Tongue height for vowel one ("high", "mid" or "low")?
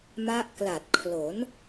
low